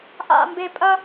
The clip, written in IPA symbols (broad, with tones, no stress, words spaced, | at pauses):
ʔa̰˨mbe˨ pʼɐ˦